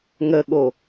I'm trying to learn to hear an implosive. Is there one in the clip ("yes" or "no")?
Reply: yes